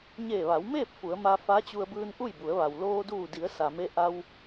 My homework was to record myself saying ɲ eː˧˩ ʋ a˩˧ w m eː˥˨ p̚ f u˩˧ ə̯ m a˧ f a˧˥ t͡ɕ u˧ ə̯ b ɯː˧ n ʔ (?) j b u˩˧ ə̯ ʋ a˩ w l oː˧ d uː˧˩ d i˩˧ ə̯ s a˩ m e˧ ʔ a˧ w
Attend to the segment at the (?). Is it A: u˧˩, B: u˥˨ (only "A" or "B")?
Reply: B